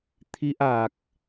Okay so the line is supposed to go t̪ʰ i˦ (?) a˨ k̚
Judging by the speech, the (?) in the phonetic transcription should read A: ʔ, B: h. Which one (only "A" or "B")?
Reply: A